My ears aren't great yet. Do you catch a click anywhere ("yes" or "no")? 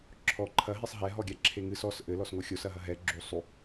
yes